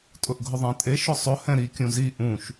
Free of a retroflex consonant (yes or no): yes